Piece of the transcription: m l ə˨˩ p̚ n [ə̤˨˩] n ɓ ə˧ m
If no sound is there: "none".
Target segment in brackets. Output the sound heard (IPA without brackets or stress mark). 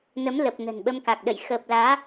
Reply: ə̤˨˩